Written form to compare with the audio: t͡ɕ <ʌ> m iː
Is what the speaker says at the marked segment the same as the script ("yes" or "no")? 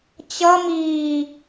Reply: yes